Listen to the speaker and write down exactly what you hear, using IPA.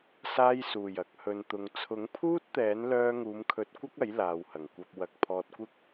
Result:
s aː˧ j s uː˨˩ j ɐ˨˥ k̚ h ɵ˨ n t̪ ʊ˨ ŋ t͡sʰ ʊ˨˥ ŋ pʰ uː˥ t̚ t̪ ɛː˨˥ n l œː˧ ŋ uː˨˧ m kʰ ɵ˨˥ t̚ kʷ ɐ˥ k̚ ɐ˨˥ j l aː˨ w h ɐ˨˩ ŋ kʷ ɐ˧ p̚ w ɐ˧ k̚ pʰ ɔː˧ t̚ kʷ ɪ˥ k̚

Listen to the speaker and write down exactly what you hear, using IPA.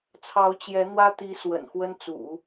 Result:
t͡sʰ ɑ˧˥ ʊ̯ t͡ɕ j ɛ˧˥ n̪ w ä˥ t̪ i˧˥ s w ə̰˨˩ n x w ə˥ n t͡s ṵ˨˩˦

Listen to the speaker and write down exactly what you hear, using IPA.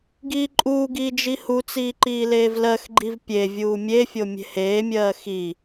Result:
ɡ iː ǃʼ uː ɡ iː d͡ʒ i h u t͡s iː ǃ iː l eː v l ɜ x ɡ͡ǃ i v pʲ e vʲ uː mʲ e fʲ o mʲ e̤ h eː mʲ ɜː x i

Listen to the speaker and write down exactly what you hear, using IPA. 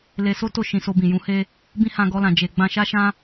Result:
l e˧ s o˦ t o˦˨ ʃ ĩ˨ s o˧ b ĩ˨ j ũ˨˦ h e˦ | b ĩ˦ h ã˧ ɡ ɔ˧ l ã˨ d͡ʒ e˨ ɡ͡b ã˧ ʃ a˦ ʃ ã˦

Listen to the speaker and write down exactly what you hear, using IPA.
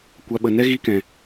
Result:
kʷ a˧ ɓ ə˧ n ɛ˦ ɣ i˦ k ɛ̃˧

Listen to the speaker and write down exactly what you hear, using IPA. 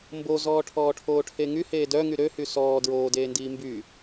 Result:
m b o z ɔː ʈʰ ɔː ʈʰ oː ʈʰ e ŋ y h eː d œ ŋ y ɾ ø h y s ɔː d ɹ oː d eː n d iː m b y

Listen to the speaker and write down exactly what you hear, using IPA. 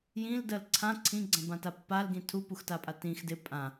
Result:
j ĩ l d ɜ l ǀʰ ã ǀʰ ĩ ɡ͡ǀ ã b ã t a pː a l ɡ ĩ tʰ u p u x t a pʼ a t ĩ x d ɪ pʼ ã

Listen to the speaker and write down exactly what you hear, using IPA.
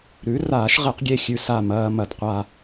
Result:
ɾ ʉ˩˥ r aː˨˩˦ ʃ ʁ e˨˩˦ q ɡʲ e˥˩ xʲ ʉ˧ s a˧˩ m ɐː˧ m ɐ˨˩˦ d qʷ a˧

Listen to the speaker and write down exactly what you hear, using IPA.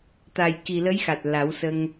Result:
t̪ a˨˩ j k i˨˩ l ə˧˥ j x a˨˩ t̚ l a˨˩˦ w s ə˧ ŋ

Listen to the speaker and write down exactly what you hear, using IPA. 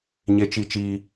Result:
ɲ e˦ t͡ʃ i˦ t͡ʃ iː˦

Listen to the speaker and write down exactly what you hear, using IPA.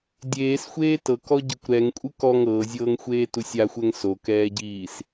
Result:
dʲ eː s xʷ eː t ɤ k ɔ ɟ ɤ kʷ ɾ ɛ ŋ kʷʼ ɯ k ɔ ŋ ɤː zʲ ɤː ŋ xʷ eː t u sʲ a xʷ ɛ ŋ s o k ɛː ɟ iː s

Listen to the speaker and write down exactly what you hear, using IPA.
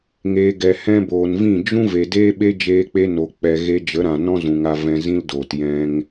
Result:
ŋ eː˨ ɡ ɛ˨ h ɛ̃˧ b oː˨ n v ĩ˦˨ d͡ʒ ũ˦ v e˨ d eː˦ ɓ e˦ d͡ʒ eː˦ k͡p e˦ n o˨ k͡p ɛ˨ ɣ e˧ d͡ʒ ə˨˦ ɾ ã˨ n ɔ̃˦ z ũ˨ ŋ a˧ v ɛ̃˧ z ĩ˦ l d oː˨ t j ɛ̃˧ ŋ

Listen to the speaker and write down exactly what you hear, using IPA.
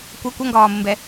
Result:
kʷ ʌ kʷ ʌ ŋ ɡ ɒː m ə m b ɛ

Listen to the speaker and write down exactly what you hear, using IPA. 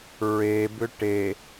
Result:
ɹ e b ʏ ʈ e

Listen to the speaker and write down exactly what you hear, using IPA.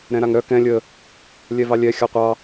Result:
ɾ ɛ̃ ɾ a ŋ ɾ œ k ɛ̃ lʲ ə | lʲ ɛ v ɑ lʲ ɛ xʲ a qʷ ɑ

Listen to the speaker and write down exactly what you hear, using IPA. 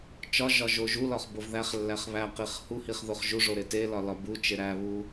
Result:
t͡ʃ ɒ ʒ ɒ ʒ o ʒ u l ɒ χ b o v ð æ χ lː æ χ β æ q i χ h u h i χ ð o χ ʒ u ʐ o ɾ e t e l ɒ l ɒ b u t͡ʃ e ɾ æ β u

